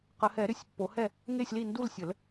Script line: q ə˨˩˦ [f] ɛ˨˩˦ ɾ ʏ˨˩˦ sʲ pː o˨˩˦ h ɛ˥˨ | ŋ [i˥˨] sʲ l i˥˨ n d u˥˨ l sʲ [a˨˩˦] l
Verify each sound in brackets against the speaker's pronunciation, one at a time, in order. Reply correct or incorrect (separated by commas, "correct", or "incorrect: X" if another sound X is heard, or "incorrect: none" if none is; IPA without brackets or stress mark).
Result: incorrect: h, incorrect: e˥˨, incorrect: ə˨˩˦